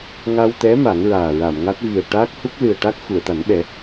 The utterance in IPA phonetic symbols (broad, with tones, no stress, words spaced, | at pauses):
ŋa˧wt̪ɛ˧˥ ma˨˩˦ŋɹaː˨˩ɹa˨˩˨mŋa˦˥t̚ vi˨˩ə̯ʈaː˦˥k̚hu˦˥k̚ lɨ˨˩ə̯ ʈa˦˥k̚ xu˨˩˨ə̯t̪a˨˩˦nɓɛ˨˩˦